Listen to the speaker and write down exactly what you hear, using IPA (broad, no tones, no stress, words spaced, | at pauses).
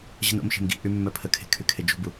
ʑə̤no̰mʃe̤m ɡḭʔy mːœpʰəkʰe̤ kʰykʰed͡ʒṳbu